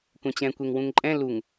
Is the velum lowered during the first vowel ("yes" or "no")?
yes